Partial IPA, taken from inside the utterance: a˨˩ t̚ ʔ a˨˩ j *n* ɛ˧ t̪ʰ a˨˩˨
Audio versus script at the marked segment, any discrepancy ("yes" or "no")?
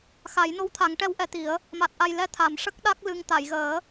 yes